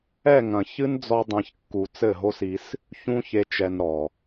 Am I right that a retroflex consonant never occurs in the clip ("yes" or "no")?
yes